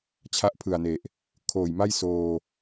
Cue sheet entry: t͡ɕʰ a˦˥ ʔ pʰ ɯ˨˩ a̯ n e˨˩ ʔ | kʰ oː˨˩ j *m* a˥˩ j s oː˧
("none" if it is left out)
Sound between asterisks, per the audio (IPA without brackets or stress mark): m